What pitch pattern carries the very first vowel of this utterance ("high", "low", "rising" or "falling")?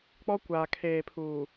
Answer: high